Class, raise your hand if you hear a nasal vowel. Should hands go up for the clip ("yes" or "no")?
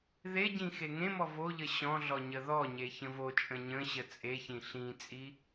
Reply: yes